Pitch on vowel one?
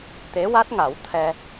rising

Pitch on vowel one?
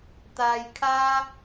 low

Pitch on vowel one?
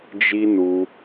high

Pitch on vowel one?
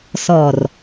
low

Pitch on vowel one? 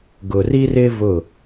low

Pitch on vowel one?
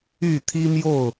falling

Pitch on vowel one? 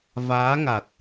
rising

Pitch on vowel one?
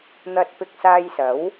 low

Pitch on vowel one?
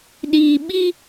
low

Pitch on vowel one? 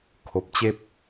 low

